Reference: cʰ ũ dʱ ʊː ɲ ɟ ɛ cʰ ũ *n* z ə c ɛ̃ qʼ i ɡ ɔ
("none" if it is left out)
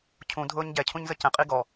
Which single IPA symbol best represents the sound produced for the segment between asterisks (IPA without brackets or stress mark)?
ɲ